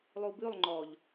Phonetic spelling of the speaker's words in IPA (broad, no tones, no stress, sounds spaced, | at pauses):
lˠ u b ʉ lˠ ŋ͡ǃ ɔ ʎ